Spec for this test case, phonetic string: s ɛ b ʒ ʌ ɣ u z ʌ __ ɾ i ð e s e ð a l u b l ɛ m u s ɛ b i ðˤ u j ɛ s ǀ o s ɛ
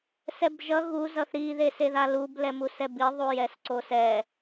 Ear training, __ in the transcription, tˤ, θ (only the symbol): θ